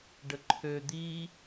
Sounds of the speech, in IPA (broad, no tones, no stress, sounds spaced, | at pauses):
ɖ ə ǃʰ ø d̪ i